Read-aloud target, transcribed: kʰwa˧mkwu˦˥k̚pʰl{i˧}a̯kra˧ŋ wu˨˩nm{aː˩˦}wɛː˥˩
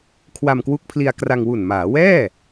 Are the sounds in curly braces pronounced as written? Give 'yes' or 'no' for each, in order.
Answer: yes, yes

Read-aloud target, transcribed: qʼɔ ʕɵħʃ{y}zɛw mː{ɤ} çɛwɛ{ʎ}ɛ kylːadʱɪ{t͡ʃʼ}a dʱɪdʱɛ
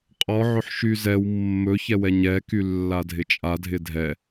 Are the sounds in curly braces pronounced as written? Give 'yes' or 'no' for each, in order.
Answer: yes, no, no, yes

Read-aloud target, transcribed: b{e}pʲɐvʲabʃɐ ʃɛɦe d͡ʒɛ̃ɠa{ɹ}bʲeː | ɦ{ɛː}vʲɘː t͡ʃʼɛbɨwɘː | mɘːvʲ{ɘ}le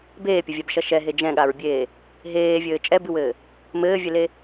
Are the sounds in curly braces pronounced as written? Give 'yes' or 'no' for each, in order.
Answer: no, yes, no, yes

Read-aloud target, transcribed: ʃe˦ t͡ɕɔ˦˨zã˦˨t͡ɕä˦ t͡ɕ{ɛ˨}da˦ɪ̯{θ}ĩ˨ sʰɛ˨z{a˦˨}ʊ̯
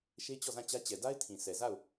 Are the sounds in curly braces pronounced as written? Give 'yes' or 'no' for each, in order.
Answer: yes, no, yes

